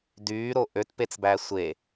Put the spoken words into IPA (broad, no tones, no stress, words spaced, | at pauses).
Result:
dyːɾo ʔøtpet͡sbæ sʷe